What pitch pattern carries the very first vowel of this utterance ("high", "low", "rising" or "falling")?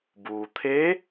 low